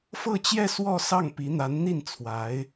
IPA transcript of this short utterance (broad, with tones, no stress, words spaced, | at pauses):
fɤ˥˧t͡ɕjɛ˥˧ swɔ˥˧ sɑ˥˩ŋpi˧˥n̪a˧˥n n̪i˥˩n t͡sʰwa˧˥ɪ̯